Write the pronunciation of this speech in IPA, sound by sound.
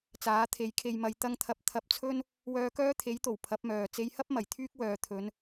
t͡s aː˨˥ t̪ʰ e˨˥ j kʰ e˧ j m ɐ˧ j t̪ ɐ˥ ŋ t̪ʰ ɐ˧ p̚ t̪ʰ ɐ˧ p̚ t͡sʰ ɵ˥ n | w œː˧ k œː˥ t̪ʰ e˨˥ j t̪ o˨˩ w pʰ ɐ˨˥ p̚ m œː˨ t͡s e˧ j h ɐ˥ p̚ m ɐ˨˩ j t̪ʰ yː˥ k̚ w œː˨ t̪ʰ ɵ˨˧ n

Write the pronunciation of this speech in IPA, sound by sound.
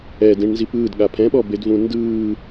ɛ d ĩ ɳ n z i p ɯː d ɠ a pʰ ɛ̃ ɓ ɔ b e d v ũ n d ɯː

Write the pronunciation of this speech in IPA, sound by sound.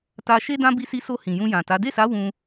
t a˧ ʃ e˦ d ã˦ b i˧ s i˧ s o˧ h ĩ˨ j ũ˧ j ã˨ t a˨˦ d e˦˨ s a˨˦ w ũ˧

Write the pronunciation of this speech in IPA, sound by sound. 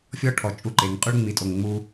fʲ ɔ˦ ʈʰ ɔ˨ t͡ʃʼ u˦ ǃ e˨˦ ŋ qʼ u˦ ɭ ŋ͡m i˨ tʼ o˨ ŋ ŋ͡m u˦

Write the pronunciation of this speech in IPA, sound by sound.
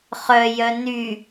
χ œ j œ n y

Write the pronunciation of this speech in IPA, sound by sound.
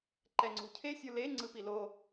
ǃ ɛ ŋ͡ǀ ṳ cʰ e sʲ u l e ŋ͡ǀ ɯ p i l o

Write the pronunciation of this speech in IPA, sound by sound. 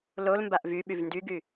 l o l m b a ʔ v y ɓ y v n d y ɡ y

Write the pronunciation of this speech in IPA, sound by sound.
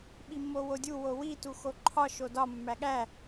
ɓ i mː o w o dʲ u w o w i t u x o ǃʰ ɒ ʃ o d ɒ mː æ ɠ æ

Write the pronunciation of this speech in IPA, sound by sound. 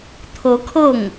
t̪ʰ ɤ˧˥ kʰ ɤ˥˩ ŋ

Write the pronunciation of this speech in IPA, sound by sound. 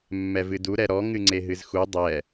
mː ɛ v ɨ d u ɾ ɛ ɾ ɔ ŋ ɨ ŋ͡ǀ e ɦ ɨ z x u dˤ ɛ

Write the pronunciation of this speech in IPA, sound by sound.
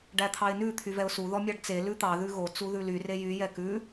ɖ æ t̪ʰ ɑ ɪ̯ n ʉ t̪ʰ y v ɛ ʊ̯ s u ð ɔ mʲ ɑ ɖ t͡s e l ʉ t̪ ɑ ð ʉ ɣ o t͡s u ð ʉ l y r e j y j ɛ k ʉ

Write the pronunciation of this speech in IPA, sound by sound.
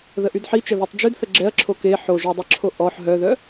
ð ə ʔ y d ħ i t͡ʃ ə ð o tˤ d͡ʒ y d θ ə ɡ͡ǁ ɛ ɐ̯ ǁʰ o k e ħ o ʒ œ dˤ e ǁʰ o ʔ ɔ ħ ɦ œ ð œ

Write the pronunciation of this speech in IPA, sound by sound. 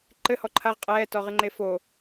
ǃ ɘ h ɔ ǃʰ a ʁ qʼ ɛː t ɔ ʁ ɨ ŋ͡ǃ e f o

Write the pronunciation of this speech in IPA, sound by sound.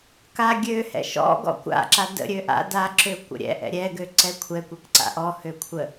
k a ɡʲ ø h ɛ̰ ʃ ɔ̰ ɡ ɔ̰ kʷ a̰ ǁ a d ə̰ ɾʲ ø ʔ a̰ d a ǁ ø kʷ ə̰ ɾʲ ɛ̰ ʔ ɛ̰ ɾʲ ɛ ɡ ø ǀ ɛ kʷʰ ɛ kʷ ɛ k ǀ a̰ ʔ ɔ h ø kʷʰ ə

